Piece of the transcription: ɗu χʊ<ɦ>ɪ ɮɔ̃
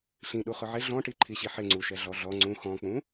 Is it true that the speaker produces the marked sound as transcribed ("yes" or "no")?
no